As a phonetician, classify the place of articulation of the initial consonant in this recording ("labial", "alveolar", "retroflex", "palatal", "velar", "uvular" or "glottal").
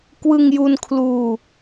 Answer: velar